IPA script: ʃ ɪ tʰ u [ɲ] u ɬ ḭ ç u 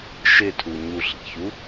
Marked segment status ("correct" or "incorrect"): correct